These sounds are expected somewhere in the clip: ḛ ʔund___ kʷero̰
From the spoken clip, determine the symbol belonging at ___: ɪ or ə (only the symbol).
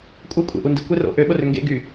ɪ